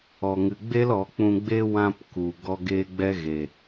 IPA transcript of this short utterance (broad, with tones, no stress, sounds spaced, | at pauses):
ɔ˨ ŋ ɨ˨ ɡ͡b e˦ l ɔ˨˦ k͡p ũ˧ ɡ͡b e˦ w ã˧ p k u˨ ɡ ɔ˦ ɡ e˦ ɡ͡b ɛ˦ ɣ e˨